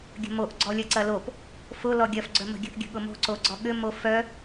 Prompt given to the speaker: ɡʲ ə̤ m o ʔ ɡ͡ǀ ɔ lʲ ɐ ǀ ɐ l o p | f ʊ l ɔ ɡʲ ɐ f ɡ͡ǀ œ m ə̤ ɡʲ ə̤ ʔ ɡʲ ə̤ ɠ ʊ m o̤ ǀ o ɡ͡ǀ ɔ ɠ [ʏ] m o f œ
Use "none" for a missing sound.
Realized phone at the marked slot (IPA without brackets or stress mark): ʏ